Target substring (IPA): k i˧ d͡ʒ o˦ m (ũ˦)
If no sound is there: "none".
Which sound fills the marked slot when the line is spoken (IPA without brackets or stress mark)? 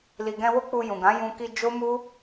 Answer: u˦